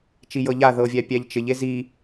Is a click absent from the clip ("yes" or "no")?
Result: yes